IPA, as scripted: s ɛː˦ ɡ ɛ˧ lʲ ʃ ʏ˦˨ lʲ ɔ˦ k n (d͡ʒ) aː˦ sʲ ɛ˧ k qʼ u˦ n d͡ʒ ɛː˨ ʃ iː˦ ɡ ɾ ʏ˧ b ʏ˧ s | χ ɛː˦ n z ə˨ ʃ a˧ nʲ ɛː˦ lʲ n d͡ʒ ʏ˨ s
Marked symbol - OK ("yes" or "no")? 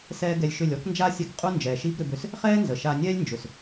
yes